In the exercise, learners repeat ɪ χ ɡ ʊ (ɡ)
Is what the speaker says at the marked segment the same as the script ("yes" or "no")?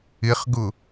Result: no